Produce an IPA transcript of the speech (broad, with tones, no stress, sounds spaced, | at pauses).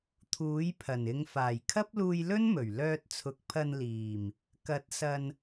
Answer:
t̪ʰ uː˨˥ j pʰ ɐ˨˩ n ɪ˨˧ ŋ f aː˨˩ j kʰ ɐ˥ p̚ l uː˧ j l ɵ˥ n m ɵ˨˩ ɥ l œː˧ t̚ t͡sʰ ʊ˨˥ k̚ pʰ ɐ˧ n l iː˨˩ m | k ɐ˨˥ t̚ s ɐ˨ n